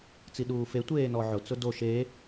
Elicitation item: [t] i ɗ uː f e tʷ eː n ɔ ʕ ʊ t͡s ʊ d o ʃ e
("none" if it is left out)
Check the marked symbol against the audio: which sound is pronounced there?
t͡s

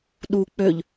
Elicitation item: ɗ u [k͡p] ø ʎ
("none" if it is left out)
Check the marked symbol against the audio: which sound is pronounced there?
k͡p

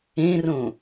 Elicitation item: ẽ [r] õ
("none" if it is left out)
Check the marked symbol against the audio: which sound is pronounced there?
r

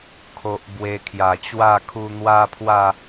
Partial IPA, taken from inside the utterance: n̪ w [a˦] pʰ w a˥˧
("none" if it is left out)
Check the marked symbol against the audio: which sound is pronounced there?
a˦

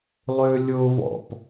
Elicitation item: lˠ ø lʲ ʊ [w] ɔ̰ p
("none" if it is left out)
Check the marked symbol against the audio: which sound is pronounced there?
v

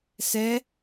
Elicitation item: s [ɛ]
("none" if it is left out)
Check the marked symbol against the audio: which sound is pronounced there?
ɛ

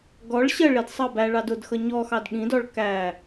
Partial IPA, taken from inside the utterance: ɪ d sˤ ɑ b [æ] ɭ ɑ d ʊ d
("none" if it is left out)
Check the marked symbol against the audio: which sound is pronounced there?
æ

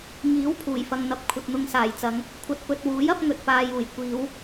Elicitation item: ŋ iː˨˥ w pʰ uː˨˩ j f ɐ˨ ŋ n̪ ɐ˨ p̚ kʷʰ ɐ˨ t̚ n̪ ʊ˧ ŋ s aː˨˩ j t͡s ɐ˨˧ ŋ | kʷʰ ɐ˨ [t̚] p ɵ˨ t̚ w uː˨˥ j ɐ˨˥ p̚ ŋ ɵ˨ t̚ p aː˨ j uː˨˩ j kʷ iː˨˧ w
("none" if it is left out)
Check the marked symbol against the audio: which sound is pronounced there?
t̚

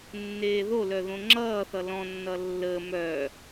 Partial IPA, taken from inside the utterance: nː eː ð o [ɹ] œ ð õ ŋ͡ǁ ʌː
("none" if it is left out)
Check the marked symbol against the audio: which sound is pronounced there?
l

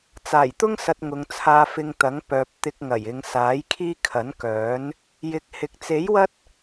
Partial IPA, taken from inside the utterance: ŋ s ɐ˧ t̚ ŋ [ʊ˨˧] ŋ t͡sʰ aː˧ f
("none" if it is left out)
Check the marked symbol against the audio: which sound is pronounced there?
ʊ˨˧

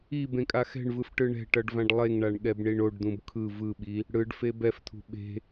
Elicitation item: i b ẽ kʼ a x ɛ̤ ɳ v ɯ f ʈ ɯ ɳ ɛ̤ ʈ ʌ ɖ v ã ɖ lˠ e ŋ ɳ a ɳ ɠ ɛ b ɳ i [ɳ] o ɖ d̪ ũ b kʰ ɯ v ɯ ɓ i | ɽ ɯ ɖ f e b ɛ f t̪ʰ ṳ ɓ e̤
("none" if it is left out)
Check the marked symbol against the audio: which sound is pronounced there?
ɳ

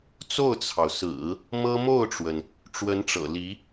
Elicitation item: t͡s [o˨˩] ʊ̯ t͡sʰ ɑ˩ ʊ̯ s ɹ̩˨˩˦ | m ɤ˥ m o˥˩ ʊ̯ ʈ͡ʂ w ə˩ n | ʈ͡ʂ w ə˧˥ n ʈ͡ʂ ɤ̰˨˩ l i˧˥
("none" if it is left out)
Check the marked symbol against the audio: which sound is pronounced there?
o˥˩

